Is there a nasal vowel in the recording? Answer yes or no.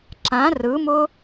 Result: yes